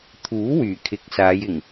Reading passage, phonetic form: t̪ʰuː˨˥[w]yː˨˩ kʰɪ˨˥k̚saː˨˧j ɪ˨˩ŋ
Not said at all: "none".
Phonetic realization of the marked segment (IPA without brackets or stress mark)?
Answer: w